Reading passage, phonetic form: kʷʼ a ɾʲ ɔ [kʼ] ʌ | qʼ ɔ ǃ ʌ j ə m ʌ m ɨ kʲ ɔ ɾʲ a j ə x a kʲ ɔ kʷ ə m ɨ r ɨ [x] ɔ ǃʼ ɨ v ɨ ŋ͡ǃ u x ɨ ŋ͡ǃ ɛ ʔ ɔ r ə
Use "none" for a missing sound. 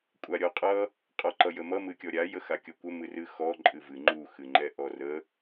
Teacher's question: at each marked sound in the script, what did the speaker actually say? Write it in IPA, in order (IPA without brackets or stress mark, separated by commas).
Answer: qʼ, x